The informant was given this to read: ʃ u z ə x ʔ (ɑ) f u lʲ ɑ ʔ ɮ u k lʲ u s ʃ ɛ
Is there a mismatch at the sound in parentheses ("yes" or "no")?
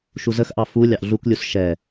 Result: no